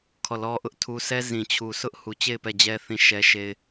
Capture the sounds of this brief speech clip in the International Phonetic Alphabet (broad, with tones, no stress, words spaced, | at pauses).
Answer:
kʰɔ˦˨lɔ˦ʔʊ˦ʔtʰu˦ sɛ˦ zĩ˨t͡ɕʰu˨sʰʊ˦ʔ hu˨t͡ɕe˦˨ɪ̯ pɛ˦˨d͡ʑɛ˦ θĩ˦˨ʃɛ˦ʃe˦ɪ̯